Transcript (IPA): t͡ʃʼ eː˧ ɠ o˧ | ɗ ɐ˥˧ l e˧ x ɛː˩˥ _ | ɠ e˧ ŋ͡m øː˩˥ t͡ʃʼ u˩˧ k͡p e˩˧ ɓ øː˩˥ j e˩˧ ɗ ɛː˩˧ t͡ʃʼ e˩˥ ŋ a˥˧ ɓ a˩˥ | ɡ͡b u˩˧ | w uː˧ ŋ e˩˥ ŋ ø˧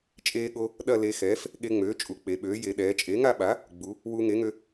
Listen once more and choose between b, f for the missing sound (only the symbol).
f